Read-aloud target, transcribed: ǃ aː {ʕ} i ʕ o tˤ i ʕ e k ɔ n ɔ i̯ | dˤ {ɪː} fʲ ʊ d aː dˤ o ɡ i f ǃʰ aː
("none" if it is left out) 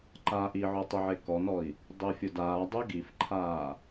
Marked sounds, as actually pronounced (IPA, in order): ʔ, ɪː

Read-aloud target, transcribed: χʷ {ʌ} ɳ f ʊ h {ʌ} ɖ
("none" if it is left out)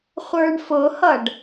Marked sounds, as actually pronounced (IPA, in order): ə˞, ʌ

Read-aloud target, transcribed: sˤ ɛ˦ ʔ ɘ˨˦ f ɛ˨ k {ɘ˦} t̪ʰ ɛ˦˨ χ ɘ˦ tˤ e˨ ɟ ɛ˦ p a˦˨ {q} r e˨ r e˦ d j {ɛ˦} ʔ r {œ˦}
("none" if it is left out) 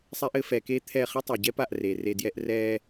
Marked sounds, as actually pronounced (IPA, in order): e˦, ʔ, ɛ˦, ɛ˦

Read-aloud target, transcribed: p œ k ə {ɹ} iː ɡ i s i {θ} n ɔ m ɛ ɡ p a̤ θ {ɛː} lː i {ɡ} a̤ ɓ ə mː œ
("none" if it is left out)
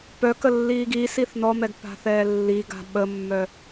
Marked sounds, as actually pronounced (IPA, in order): lː, θ, ɛː, ɡ

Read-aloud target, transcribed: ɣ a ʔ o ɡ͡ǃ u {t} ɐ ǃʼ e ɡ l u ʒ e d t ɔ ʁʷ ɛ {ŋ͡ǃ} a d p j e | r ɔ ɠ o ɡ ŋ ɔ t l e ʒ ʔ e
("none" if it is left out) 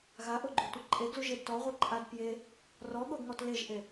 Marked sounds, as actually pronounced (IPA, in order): tʷ, ǃʼ

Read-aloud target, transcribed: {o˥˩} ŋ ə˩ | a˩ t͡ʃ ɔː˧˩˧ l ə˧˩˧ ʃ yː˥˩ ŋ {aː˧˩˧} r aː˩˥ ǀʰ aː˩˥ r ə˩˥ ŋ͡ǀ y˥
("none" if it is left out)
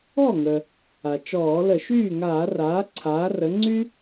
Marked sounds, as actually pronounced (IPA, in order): ɔ˥˩, aː˧˩˧

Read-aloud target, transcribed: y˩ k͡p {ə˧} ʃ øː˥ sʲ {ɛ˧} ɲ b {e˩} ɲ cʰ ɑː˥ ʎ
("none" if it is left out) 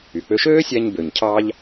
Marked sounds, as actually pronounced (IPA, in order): ø˧, æ˧, ø˩

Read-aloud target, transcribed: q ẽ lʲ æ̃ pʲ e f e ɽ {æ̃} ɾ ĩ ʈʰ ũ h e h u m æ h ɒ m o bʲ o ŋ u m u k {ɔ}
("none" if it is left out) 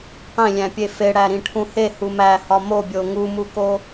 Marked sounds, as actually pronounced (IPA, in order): æ, o

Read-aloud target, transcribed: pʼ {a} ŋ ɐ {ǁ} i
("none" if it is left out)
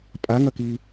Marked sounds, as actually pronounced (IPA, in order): a, k

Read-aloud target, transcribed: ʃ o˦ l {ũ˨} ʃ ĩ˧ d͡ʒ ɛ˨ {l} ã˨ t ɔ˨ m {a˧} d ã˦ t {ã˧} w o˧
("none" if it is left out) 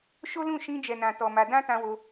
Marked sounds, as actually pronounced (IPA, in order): ũ˦˨, n, a˧, ã˧

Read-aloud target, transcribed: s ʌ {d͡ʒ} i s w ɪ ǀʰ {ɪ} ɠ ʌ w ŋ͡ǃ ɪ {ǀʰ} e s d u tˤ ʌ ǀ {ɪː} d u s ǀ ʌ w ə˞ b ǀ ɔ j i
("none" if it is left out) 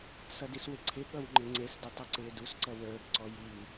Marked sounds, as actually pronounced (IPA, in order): d, ɪ, ŋ͡ǀ, ɪː

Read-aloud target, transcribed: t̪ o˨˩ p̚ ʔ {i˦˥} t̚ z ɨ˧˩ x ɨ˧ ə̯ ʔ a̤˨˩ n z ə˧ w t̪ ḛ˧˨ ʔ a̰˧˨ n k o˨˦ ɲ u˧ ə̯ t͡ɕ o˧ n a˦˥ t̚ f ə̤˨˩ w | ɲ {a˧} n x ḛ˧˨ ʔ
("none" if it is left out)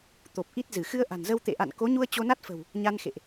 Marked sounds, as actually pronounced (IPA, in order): i˦˥, a˧

